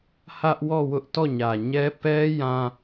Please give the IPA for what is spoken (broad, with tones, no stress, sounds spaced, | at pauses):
h ä˦ ʔ w ɔ˦˨ w ʊ˦ ʔ t ɔ˦˨ ɲ ä˨ ɲ ɛ˦ p ɛ˦ j ã˦